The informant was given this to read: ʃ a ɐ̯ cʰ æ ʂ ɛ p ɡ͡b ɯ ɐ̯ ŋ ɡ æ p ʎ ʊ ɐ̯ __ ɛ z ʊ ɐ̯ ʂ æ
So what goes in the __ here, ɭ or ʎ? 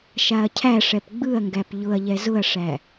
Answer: ʎ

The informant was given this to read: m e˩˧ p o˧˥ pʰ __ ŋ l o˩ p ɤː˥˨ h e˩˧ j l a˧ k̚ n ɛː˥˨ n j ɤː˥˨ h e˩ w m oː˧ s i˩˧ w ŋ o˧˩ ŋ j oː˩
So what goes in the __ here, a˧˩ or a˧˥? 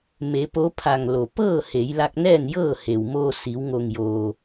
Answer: a˧˩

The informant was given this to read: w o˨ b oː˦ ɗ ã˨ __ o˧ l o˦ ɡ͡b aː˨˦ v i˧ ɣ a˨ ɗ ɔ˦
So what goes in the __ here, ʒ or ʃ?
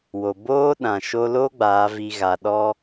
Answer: ʃ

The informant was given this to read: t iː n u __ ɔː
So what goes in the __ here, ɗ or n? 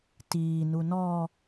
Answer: n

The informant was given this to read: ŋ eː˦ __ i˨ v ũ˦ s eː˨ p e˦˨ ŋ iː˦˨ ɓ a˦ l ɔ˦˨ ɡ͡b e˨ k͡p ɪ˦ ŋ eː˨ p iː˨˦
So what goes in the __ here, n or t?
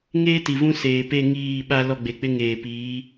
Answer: t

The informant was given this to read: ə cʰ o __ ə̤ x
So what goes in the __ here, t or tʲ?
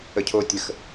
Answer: tʲ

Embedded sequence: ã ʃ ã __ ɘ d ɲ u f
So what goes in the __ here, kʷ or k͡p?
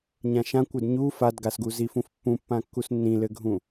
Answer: kʷ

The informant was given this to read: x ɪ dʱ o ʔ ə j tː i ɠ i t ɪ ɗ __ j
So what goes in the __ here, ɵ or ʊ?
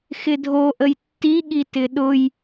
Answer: ʊ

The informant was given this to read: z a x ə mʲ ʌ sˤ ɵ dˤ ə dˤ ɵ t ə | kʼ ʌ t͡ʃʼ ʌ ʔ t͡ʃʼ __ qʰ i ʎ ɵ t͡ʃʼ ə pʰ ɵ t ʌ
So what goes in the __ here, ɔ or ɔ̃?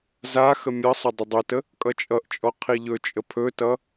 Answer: ɔ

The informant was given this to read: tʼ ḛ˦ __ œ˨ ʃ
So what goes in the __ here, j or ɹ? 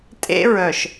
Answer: ɹ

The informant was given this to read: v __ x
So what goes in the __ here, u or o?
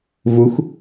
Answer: u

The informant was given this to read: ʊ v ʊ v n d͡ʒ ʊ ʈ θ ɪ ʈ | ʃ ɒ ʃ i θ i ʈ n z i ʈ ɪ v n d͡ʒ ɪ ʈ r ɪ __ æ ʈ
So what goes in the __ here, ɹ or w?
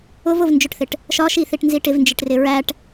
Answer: ɹ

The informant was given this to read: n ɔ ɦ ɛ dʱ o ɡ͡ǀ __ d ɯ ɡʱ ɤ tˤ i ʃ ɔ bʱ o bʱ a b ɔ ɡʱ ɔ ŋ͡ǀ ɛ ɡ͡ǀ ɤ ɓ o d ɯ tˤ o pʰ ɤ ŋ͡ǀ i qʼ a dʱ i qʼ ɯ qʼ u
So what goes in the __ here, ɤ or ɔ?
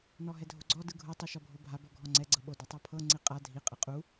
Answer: ɔ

